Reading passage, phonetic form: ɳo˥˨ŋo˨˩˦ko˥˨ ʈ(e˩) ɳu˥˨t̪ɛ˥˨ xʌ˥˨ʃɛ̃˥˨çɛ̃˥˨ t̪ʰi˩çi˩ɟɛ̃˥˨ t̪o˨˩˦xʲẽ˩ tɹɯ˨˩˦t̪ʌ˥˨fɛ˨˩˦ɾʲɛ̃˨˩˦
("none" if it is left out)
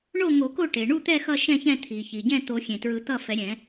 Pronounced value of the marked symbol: e˩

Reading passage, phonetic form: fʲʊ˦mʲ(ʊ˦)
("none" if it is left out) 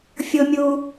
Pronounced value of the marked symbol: u˦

